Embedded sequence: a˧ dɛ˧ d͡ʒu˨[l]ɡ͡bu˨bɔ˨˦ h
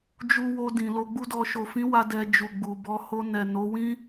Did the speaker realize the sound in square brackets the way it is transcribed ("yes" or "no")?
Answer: no